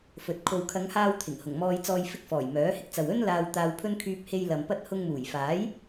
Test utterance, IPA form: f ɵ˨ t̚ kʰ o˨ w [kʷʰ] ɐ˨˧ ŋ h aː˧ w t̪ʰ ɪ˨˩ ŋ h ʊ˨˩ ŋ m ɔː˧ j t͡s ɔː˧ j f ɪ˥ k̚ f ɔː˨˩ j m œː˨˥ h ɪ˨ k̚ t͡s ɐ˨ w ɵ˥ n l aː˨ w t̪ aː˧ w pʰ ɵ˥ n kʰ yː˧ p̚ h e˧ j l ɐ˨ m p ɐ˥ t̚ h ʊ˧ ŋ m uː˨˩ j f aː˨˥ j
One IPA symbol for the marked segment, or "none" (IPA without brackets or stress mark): kʰ